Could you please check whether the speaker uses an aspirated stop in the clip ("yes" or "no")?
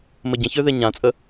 no